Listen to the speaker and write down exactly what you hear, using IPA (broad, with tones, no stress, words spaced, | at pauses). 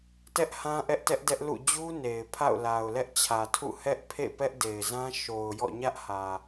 tɛ˦ʔhã˦ ʔɛ˦ʔtɛ˦ʔ dɛ˦ʔlṵ˦˨ d͡ʑu˦ ne˨ɪ̯ pʰa̰˦˨ʊ̯la˨ʊ̯lɛ˦ʔ t͡ɕʰä˨tʰṵ˦˨ hɛ˦ʔ pʰḛ˦˨pɛ˦ʔde˨ɪ̯zã˦ ʃo˨ʊ̯jɔ̰˦˨ ɲä˦ʔhä˨